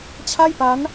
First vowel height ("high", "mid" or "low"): low